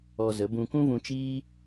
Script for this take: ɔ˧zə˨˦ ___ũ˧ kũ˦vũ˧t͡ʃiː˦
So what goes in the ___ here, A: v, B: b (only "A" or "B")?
B